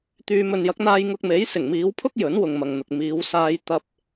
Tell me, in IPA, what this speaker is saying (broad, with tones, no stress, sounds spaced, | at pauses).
t̪ yː˨ m ɵ˨ n j ɐ˨˥ k̚ n̪ aː˧ j ŋ ʊ˧ k̚ m e˨˥ j s ɪ˨˩ ŋ m iː˨˧ w pʰ ʊ˥ k̚ j ɵ˨˥ n w ʊ˨ ŋ m ɐ˨ ŋ n̪ ʊ˨ k̚ m iː˨˧ w s aː˧ j t̪ ɐ˧ p̚